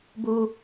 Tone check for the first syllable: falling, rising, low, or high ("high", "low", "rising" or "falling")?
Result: high